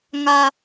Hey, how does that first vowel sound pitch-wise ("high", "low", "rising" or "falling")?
low